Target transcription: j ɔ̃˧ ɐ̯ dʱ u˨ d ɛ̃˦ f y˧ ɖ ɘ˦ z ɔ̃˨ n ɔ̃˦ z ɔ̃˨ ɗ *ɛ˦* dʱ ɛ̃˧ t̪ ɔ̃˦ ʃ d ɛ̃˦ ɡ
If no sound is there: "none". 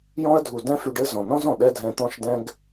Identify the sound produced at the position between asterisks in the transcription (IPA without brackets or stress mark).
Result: ɛ˦